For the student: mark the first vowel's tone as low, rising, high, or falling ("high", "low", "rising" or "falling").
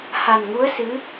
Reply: low